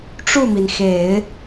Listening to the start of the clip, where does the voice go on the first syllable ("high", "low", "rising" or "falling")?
falling